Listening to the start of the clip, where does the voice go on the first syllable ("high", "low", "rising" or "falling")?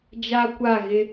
high